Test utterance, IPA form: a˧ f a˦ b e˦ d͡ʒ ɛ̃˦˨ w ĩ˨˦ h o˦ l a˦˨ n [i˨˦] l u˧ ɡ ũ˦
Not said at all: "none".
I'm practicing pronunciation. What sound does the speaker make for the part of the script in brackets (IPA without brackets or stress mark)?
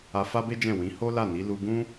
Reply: i˨˦